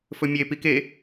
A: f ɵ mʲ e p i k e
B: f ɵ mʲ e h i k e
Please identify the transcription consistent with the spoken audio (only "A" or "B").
A